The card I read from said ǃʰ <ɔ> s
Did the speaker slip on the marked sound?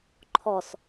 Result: no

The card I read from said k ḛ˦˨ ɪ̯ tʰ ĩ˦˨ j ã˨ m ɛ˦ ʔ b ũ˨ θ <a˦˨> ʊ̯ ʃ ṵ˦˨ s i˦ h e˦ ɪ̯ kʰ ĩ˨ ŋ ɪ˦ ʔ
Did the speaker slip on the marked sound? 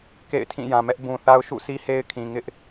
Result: yes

